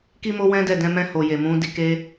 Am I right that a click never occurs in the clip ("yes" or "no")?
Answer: yes